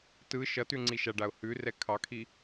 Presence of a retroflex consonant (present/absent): present